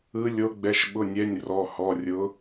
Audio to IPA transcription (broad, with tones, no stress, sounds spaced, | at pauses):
ɯ˨˦ lʲ o˨˦ ɡ͡b ɛ˩˧˩ ʃ ɓ ʊ˩˧˩ nʲ ɛ˩˧˩ nʲ r ɔ˩˧˩ h ɔ˩˧˩ rʲ ʊ˨˦